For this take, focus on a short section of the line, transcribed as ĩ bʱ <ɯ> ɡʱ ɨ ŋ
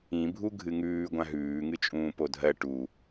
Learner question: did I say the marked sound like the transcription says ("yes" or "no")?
no